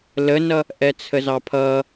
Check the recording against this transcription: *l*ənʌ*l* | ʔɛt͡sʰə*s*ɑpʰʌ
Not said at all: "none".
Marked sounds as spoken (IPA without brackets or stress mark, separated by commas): l, none, z